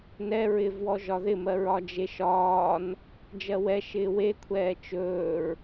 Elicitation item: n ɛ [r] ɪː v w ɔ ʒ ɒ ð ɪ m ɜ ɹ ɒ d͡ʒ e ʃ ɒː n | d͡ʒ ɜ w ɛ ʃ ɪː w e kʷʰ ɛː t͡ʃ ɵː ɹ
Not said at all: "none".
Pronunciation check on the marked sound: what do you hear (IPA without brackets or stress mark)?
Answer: ɹ